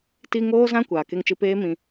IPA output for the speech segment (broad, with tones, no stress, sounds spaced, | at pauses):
t i˧ ŋ oː˦ z ã˦ kʷ aː˨ k e˧ ŋ t͡ʃ ɨ˧ p eː˦ m ĩ˧